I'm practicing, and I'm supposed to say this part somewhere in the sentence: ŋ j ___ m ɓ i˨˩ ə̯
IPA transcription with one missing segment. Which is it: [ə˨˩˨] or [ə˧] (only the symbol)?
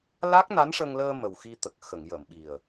ə˨˩˨